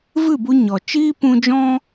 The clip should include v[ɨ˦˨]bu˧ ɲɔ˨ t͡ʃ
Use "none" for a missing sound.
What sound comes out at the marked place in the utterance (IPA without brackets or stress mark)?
ɨ˦˨